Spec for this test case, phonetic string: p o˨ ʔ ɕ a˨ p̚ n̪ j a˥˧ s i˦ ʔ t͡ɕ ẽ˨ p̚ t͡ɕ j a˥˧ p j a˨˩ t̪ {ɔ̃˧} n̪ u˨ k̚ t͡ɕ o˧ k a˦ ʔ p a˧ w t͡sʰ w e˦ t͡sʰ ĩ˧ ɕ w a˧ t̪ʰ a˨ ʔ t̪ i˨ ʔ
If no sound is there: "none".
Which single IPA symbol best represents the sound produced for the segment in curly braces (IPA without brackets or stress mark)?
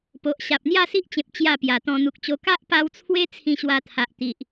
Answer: ɔ̃˧